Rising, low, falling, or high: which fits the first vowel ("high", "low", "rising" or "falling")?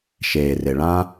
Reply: low